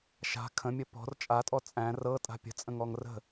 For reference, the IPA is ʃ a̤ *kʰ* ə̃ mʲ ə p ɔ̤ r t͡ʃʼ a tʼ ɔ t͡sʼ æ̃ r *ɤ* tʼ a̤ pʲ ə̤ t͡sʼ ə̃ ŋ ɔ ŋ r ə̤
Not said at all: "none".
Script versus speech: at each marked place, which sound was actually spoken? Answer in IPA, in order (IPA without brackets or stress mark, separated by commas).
kʰ, ɤ